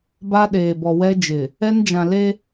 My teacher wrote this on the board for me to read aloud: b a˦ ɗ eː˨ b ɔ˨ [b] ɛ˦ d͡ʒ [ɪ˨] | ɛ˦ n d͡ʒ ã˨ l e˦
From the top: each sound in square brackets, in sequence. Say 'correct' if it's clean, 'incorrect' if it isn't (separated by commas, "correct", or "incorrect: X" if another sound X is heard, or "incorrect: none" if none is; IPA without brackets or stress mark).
incorrect: w, correct